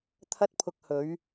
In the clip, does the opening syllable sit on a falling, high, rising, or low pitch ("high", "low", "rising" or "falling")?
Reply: high